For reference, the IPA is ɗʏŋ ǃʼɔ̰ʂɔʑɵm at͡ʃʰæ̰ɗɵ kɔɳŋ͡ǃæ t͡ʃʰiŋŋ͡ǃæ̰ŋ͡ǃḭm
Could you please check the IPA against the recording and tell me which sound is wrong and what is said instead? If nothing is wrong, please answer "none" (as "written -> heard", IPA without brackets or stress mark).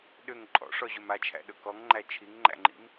ɳ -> ŋ